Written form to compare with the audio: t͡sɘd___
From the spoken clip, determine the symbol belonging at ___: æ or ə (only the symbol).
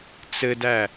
æ